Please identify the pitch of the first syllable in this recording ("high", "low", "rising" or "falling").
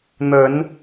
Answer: low